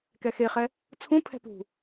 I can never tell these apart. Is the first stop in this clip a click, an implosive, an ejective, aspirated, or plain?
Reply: plain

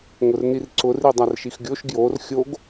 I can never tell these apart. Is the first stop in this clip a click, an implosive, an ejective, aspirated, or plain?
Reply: click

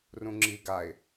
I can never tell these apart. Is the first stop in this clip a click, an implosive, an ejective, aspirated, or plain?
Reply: click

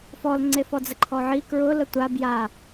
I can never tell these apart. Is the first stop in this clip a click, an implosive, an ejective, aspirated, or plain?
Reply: click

